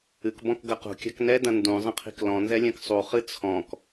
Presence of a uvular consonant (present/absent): present